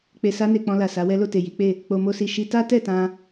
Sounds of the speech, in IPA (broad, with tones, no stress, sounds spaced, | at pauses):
k͡p e˨ s a˧ n e˨ k͡p ɔ̃˧ l a˨ s a˨˦ w ɛ˦ l o˦˨ t e˨ j i˨˦ k͡p e˦˨ | k͡p o˧ m o˦ s i˧ ʃ i˧ t a˦ t ɛ˦˨ t ã˧